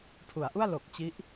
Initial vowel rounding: rounded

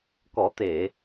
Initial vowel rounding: rounded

